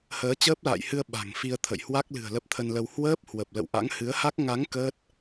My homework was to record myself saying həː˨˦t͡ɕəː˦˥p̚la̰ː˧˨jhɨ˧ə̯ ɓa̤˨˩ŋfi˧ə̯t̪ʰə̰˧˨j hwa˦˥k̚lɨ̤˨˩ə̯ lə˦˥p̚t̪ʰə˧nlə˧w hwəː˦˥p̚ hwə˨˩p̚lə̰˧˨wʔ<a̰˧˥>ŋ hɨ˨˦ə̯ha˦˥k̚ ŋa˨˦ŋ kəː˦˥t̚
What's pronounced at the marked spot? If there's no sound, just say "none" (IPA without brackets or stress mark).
a̰˧˥